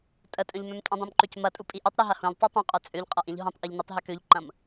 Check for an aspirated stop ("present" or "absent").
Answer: absent